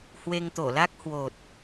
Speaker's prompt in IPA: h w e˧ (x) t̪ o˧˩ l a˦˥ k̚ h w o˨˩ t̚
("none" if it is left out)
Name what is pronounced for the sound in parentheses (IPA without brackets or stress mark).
ŋ